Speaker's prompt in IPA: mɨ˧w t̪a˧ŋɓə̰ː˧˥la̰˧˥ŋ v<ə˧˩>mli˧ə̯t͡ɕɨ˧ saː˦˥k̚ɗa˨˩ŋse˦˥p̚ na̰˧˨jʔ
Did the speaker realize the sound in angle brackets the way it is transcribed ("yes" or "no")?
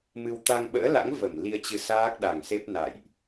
yes